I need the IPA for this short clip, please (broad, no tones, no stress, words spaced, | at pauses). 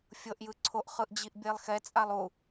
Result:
fʲɤʔjɯ ǀʰoʔχɯʔd͡ʑiʔ bʲelˠxɛ t͡sʼalˠu